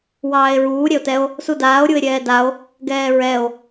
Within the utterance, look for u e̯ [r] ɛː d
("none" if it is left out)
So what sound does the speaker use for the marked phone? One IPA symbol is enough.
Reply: ɾʲ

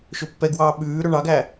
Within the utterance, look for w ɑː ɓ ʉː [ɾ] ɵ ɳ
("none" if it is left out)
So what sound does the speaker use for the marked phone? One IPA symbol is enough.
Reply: ɾ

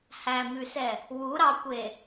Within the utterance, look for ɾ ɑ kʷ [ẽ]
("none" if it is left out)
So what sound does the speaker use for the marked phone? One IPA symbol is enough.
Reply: e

